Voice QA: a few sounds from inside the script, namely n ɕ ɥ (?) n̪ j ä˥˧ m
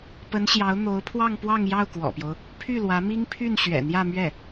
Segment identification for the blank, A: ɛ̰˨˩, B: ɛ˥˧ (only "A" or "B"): A